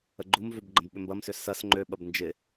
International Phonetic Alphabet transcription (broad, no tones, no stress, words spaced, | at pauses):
əɡ͡ǃumvøb ɡ͡ǃə̃bɓʏmbɐmsʏ sɐs ŋ͡ǃøɓɐb nd͡ʒɪ